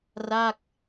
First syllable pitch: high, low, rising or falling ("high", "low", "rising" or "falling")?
falling